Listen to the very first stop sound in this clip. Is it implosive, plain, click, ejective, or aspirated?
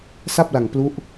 plain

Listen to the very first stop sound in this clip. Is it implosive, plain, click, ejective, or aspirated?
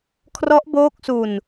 aspirated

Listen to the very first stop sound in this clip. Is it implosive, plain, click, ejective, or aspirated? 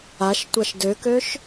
plain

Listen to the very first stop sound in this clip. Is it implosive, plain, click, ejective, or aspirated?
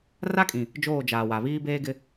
ejective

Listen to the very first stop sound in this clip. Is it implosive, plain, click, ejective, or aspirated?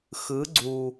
click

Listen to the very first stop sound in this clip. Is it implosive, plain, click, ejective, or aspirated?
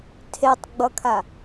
aspirated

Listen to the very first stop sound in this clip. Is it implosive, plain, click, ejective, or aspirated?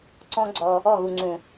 click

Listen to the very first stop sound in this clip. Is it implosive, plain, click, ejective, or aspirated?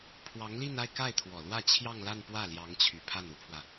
aspirated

